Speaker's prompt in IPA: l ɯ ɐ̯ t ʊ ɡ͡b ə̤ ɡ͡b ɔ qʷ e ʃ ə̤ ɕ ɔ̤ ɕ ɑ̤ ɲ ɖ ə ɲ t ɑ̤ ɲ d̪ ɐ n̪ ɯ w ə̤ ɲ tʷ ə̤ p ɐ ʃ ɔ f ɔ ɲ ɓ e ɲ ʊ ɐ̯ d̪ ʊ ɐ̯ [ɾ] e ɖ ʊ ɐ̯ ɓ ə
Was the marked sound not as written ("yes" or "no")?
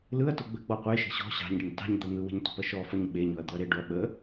no